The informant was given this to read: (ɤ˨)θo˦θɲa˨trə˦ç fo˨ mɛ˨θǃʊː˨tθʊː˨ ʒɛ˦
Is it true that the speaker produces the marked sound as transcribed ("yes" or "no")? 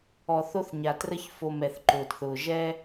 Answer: no